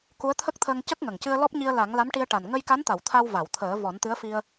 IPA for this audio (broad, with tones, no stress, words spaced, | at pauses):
ku˧˥ə̯t̪ʰə˦˥k̚t̪ʰəː˧ŋ cə˦˥k̚ŋə˨˩ŋcɨ˧ə̯ lɔ˦˥p̚ɲi˧ə̯la˨˩˦ŋ la˧˥mʈi˧ə̯ ʈa˨˩n ŋə˧jka˧˥nt̪a˨˩˨w t̪ʰa˧wva˨˩˨w t̪ʰəː˨˩˦vɔ˨˩˦nt̪ɨ˧˥ə̯fi˧ə̯